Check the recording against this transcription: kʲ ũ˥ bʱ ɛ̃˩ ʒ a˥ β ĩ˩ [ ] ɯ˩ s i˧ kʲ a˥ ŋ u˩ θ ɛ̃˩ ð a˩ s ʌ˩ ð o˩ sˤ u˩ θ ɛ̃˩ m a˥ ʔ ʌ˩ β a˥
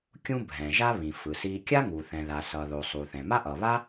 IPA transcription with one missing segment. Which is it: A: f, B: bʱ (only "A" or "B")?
A